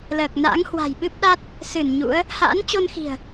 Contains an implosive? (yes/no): yes